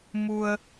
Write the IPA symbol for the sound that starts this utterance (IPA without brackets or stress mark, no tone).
m